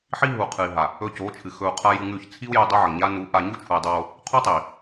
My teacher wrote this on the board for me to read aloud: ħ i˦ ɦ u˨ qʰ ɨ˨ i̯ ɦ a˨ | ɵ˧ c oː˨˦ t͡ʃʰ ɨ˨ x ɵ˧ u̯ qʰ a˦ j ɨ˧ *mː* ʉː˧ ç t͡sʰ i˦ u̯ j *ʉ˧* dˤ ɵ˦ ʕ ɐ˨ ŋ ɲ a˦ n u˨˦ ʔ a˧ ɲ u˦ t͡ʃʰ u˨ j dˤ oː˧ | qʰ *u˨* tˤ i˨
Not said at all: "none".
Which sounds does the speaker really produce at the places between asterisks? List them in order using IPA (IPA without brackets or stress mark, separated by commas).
ŋ, ʉ˧, u˦